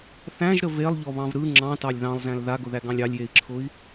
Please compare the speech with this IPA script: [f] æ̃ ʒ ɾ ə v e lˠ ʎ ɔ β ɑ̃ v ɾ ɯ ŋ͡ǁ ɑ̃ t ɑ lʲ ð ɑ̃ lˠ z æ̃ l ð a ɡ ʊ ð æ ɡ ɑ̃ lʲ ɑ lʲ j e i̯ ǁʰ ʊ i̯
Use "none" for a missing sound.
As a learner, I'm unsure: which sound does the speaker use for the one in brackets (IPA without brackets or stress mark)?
θ